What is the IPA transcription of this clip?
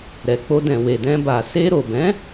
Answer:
ɾ ɛ˨ k͡p o˧ d ɛ̃˨ w e˨ d ɛ̃˧ b a˨ s e˧ ɾ o˨ b ɛ̃˨˦

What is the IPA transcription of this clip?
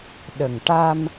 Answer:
ɗ ə˨˩ ŋ ʈ a˧ m

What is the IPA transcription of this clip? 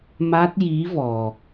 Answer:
m a˦˥ t̚ j i˧˥ v ɔ˨˩

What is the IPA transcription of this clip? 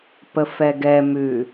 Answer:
p ə f ɛ ɡ ɛ m ʉ

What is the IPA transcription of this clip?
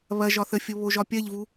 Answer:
β ɐ ʒ ɒ θ ə fʲ o β o ʒ ɒ pʲ ɐ ʎ v u

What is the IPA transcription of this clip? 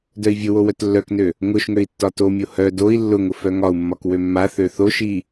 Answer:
d œ i̯ vʲ ʊ w o w œ t lː œ k n ø | ŋ ʊ ʃ ŋ ø i̯ tː ɒ t o mʲ o h œ d o i̯ lː ʊ ŋ ʊ f œ ŋ ɒ u̯ mː ɒ k w ø mː a θ ø θ o ʃ i

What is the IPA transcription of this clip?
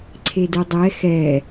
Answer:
ǀʰ e d ɨ dˤ ɛ x ɛ

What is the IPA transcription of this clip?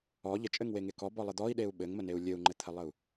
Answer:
ɔ ʎ ə t͡ʃʼ ɘ ŋ w e ŋ e k ɔ b ɔ lˠ ɘ d̪ ɔ i̯ ɗ e u̯ ɓ ɘ ŋ m ə n e u̯ lʲ ɘ u̯ ŋ͡ǃ ɘ t̪ʰ ə lˠ ə u̯

